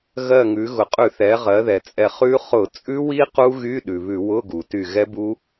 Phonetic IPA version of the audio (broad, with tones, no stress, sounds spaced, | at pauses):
ɣ ɜ˧˩ ŋ ʉ˩˧ ɣ ʊ˩ qʼ ʉ˧˩˧ θ ɛ˩˧ ʁ ɜ˩˧ ð ɛ˩ t͡sʼ ɛ˧˩ χ ʉ˦˥ χ ʊ˧˩˧ t͡sʼ ʉ˦˥ w i˦˥ q u˦˥ ɣ y˧˥˧ ɗ ʉ˩ β ʉ˧˩˧ w ʊ˧˥˧ ɡ u˩ t y˧˩ ɣ ɛ˦˥ b u˦˥